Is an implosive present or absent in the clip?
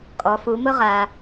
absent